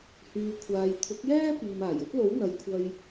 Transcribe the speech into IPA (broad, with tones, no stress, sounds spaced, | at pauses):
h yː˨ kʷʰ aː˨ j t̪ʰ ʊ˨˥ k̚ j ɛː˥ p iː˨ m aː˨˩ j ɵ˥ t̚ l o˨˥ w n̪ ɐ˨ j kʷʰ ɐ˧ j